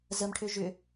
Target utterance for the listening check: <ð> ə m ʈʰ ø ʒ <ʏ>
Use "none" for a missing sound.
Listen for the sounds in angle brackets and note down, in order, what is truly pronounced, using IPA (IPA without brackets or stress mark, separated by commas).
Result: z, ʏ